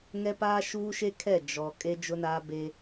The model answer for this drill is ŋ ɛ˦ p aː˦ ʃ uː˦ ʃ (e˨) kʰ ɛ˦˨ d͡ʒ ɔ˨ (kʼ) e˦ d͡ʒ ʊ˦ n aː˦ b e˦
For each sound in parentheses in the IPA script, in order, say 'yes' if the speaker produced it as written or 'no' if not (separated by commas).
no, yes